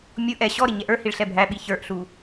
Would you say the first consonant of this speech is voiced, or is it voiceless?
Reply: voiced